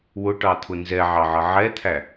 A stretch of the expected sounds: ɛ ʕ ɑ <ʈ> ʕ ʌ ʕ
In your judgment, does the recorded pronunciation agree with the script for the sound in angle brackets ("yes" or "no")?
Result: no